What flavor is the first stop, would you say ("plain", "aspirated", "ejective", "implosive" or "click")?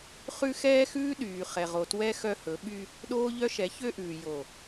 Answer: implosive